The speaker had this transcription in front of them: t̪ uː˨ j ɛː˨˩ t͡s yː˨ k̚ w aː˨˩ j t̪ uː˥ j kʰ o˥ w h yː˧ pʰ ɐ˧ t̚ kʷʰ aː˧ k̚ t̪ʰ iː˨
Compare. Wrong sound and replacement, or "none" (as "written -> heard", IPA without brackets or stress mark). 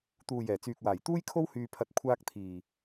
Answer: none